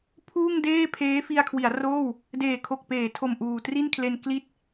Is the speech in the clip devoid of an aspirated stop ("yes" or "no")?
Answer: no